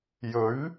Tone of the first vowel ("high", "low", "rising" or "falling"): rising